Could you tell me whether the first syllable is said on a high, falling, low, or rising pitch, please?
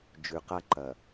low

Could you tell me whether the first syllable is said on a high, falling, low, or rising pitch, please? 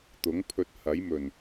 rising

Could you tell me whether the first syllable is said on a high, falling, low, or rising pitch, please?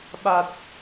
low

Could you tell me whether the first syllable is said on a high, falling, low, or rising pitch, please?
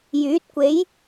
rising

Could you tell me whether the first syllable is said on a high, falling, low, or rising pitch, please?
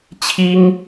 high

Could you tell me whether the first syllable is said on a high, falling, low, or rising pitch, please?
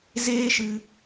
high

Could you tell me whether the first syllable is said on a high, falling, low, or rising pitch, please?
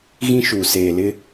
high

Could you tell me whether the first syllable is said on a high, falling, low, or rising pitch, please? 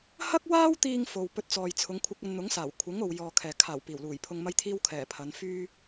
high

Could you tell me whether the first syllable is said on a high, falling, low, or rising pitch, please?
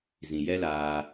low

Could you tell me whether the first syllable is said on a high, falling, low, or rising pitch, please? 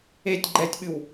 low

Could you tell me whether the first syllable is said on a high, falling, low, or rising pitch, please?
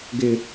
high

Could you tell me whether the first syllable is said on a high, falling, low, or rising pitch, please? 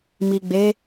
low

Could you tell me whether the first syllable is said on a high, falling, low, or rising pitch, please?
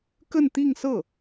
falling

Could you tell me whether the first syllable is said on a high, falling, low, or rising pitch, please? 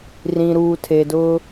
low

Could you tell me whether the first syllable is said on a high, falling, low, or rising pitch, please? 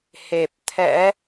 low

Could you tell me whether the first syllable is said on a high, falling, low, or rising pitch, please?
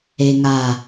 high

